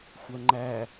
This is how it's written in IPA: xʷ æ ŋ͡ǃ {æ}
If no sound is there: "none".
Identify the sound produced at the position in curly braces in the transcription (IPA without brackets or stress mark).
æ